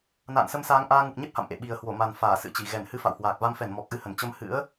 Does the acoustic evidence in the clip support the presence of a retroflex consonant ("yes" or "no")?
no